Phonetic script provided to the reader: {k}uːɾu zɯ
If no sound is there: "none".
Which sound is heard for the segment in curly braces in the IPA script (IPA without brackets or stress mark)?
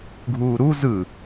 ɡʱ